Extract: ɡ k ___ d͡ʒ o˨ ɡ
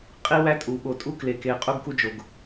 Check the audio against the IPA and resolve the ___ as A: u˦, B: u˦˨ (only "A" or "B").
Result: A